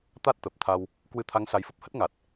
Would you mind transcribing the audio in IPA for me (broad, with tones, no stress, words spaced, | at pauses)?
t̪a˦˥t̚t̪ə˨˩p̚ t̪ʰa˧w | kwɨ˧t̪ʰa˨˦ŋ sa˨˦jfə˦˥p̚hə˦˥t̚ ŋa˨˩t̚